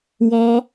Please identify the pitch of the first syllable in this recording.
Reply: high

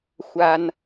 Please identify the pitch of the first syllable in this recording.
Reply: high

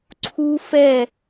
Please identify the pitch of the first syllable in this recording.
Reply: high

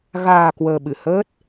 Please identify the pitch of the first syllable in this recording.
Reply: low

